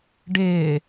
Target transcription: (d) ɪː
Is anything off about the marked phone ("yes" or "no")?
yes